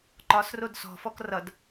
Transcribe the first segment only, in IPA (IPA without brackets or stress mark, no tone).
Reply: ǃ